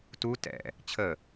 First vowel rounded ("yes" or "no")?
yes